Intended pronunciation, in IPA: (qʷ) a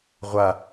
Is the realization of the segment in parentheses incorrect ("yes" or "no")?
yes